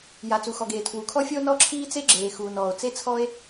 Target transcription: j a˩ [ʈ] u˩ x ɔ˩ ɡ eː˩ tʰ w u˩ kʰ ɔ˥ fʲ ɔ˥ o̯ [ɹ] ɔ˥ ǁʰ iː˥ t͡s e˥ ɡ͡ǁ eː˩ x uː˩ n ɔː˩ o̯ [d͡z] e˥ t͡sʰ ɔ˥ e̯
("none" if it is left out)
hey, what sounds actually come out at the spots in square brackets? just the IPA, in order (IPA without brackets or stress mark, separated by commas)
t͡s, n, t͡s